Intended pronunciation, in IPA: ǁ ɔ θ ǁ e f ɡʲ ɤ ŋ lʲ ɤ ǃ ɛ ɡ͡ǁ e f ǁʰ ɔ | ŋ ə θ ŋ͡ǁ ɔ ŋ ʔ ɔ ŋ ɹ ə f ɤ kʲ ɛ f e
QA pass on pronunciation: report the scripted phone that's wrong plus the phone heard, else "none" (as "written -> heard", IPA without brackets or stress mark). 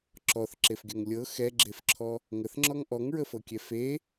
ǃ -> x